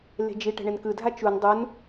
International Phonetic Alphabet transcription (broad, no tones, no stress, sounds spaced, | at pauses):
l e̤ d͡ʒ i ʈ ɛ̤ ɳ e n k ɯ dʱ a t͡ʃ u n dˤ u n